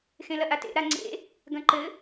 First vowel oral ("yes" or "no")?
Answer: no